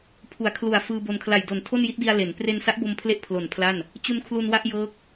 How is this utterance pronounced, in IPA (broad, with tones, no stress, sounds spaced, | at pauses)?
pʰ u˩˦ a̯ kʰ l u˨˩ a̯ f ɯː˧ b o˧ n kʰ l a˨˩ j d o˨˩ n tʰ o˥˩ n j i˦˥ t̚ d i˧ a̯ l e˩˦ n p r e˧ n s a˦˥ ʔ b o˧ m pʰ l e˦˥ ʔ pʰ l o˨˩ n pʰ l a˥˩ n | t͡ɕ u˧ n kʰ l u˧ n w a˥˩ ʔ j ɤː˦˥ k̚